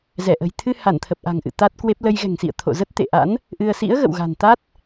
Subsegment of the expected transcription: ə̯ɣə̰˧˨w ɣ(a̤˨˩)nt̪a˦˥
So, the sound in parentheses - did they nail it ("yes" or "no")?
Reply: yes